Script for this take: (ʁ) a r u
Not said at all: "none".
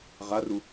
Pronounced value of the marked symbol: ʁ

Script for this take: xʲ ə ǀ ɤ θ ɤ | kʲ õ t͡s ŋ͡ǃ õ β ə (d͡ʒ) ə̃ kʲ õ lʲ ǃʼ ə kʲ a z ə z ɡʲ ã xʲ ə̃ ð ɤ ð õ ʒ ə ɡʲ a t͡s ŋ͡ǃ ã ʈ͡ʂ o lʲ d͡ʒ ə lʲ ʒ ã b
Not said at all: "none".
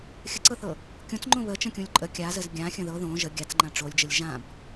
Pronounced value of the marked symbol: t͡ʃ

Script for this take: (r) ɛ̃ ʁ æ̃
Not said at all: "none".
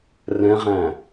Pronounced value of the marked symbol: r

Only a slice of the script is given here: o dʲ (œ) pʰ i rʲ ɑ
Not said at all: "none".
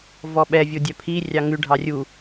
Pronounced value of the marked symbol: œ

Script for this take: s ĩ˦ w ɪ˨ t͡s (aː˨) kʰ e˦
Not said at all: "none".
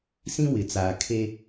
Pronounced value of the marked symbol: aː˨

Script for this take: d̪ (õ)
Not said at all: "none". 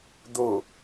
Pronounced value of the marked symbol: o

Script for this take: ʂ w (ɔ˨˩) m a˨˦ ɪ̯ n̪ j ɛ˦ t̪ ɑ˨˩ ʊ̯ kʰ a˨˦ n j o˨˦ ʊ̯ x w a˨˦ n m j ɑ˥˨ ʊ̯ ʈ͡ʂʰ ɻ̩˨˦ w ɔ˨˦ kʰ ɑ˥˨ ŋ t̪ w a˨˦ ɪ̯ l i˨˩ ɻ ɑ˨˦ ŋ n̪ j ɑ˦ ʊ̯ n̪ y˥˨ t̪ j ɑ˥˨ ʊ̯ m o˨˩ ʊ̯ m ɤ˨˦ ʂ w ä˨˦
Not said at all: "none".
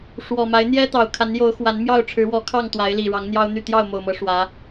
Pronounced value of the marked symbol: ɔ˨˩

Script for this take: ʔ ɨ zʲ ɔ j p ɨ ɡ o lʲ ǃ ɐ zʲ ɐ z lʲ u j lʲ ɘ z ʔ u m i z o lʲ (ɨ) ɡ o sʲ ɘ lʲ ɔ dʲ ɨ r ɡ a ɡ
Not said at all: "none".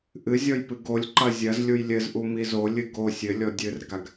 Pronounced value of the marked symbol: ɨ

